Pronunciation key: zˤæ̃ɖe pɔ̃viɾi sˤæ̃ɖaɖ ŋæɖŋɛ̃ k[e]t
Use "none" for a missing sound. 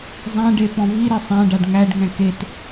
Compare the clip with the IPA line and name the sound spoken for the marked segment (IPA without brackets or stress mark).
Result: e